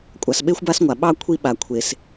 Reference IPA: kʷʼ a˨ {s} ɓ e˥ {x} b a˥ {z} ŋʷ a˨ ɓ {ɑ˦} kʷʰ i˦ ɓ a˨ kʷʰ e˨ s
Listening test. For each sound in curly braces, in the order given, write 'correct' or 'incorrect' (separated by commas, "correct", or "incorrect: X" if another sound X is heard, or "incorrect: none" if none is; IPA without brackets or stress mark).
correct, incorrect: xʷ, incorrect: s, correct